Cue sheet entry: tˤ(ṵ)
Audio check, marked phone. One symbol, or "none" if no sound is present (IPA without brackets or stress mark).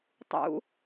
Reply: ṵ